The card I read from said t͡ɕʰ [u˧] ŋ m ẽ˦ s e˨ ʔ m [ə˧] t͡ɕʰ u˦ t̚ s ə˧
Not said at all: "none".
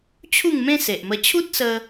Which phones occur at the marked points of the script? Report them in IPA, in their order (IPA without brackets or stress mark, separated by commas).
u˥˧, ə˧